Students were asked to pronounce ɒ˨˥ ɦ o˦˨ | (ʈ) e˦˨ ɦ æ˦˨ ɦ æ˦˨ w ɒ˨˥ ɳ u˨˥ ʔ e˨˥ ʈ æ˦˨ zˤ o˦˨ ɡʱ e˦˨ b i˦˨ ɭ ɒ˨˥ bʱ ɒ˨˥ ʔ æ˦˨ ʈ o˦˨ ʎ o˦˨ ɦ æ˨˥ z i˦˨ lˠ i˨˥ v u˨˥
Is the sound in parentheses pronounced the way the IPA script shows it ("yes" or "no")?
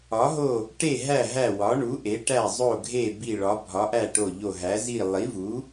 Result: yes